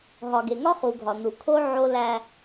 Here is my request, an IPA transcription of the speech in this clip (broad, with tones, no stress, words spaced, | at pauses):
ɦɒ˨ɡe˨ŋɒ˦ χu˨ɡʱɒ˨ nu˨kʰo˦ ʕo˦læ˦